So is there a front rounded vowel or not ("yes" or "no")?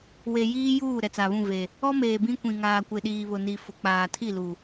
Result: no